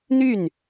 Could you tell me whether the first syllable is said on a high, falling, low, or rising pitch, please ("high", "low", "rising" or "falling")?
falling